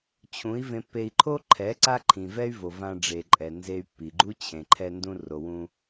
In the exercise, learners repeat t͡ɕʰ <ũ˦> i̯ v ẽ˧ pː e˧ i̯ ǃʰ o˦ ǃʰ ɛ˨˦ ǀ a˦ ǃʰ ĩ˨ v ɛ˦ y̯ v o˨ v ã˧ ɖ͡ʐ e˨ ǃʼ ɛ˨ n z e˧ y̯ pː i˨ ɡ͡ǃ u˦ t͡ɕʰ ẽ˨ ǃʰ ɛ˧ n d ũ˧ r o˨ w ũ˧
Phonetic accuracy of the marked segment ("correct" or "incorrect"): incorrect